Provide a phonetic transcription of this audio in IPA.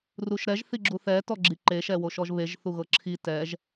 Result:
ruʃɾɛʒ θiɡ͡ǁuθɛ tɔɡ͡ǁiǃe ʃɛwoʃɔʒβeʒ θuɣɤǁʰi tɛʒ

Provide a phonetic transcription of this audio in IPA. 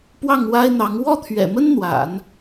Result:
pwɑ˥˩ŋwa˥ɪ̯n̪ɑ˧˥ŋ wɔ˥˩t̪ʰɥɛ̰˨˩mə˥n n̪wa̰˨˩˦n

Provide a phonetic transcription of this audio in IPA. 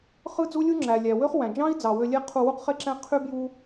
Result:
χɯ˦d͡zu˦lʲu˦ ŋ͡ǁæ˨ lʲæ˨wø˦χwæ̃˨ d͡ʒɑ̃˦i̯ d͡zɑ˨ wø˧lʲe˦ qʰu˧wu˦qχe˦ǁæ̃˦ qʰy˦ bju˦

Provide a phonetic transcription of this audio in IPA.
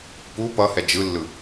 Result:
pu pʌhɛ d͡ʒɯlːɯ

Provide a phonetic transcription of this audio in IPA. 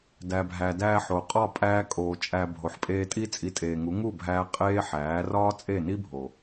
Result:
dæ˨bʱæ˨dæː˧ħo˨ qʼɒ˦˨pʼæː˧ kʼoː˨ t͡ʃʼæ˨ bʱo˨ħpʼeː˧tʼi˦t͡sʼi˧ tʼeː˨ŋu˨˦ ŋu˦˨bʱæː˧ qʼeː˦ħæː˨˦ rɒː˦t͡sʼe˦˨ni˦bʱo˨

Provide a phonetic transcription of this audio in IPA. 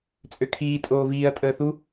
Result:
t͡sʼøkʰiː tʼoːviːɐ̯ tʼəːθu

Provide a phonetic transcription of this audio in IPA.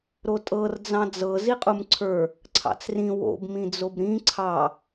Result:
ɾotʼɤr d͡zɑ̃d͡zɤ ziqʼumǀʰə˞ | ǀʰɑ̰t͡srĩ wo̰b mĩd͡zobɾĩ ǀʰɑ

